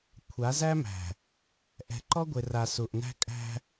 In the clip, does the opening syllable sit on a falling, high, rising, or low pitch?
rising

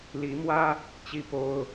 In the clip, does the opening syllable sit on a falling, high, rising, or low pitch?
rising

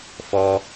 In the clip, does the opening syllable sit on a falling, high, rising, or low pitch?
high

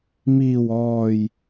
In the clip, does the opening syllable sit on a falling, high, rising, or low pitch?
low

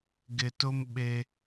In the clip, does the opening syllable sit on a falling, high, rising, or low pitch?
low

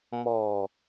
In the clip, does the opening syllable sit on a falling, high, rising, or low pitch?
low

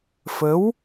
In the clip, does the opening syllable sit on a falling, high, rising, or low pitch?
rising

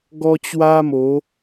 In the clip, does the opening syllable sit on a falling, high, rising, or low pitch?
high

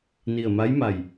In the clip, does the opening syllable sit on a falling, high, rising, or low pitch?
low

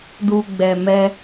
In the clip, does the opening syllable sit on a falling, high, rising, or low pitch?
low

